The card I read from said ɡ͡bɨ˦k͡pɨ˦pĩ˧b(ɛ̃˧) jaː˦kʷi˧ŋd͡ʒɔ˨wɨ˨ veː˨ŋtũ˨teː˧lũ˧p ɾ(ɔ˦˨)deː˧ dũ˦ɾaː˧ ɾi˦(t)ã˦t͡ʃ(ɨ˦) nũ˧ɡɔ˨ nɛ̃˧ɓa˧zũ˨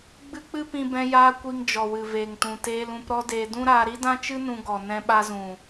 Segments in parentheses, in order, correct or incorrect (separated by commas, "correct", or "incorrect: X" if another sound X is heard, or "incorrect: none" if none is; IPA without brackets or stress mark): correct, incorrect: ɔ˦, incorrect: d, correct